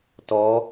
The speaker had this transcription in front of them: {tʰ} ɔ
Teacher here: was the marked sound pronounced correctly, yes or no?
no